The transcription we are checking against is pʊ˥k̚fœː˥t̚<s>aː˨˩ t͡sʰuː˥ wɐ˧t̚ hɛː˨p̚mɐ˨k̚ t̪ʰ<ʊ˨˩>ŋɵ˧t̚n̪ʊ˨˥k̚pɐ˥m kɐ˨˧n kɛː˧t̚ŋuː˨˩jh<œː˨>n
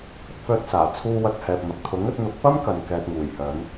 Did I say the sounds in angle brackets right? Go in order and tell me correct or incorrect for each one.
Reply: correct, incorrect, incorrect

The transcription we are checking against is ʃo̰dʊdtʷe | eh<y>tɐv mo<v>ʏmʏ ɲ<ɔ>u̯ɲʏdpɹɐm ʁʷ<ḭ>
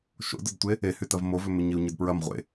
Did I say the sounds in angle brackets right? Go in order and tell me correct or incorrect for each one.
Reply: correct, correct, incorrect, incorrect

